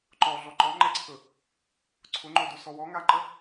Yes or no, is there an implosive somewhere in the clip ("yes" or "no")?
no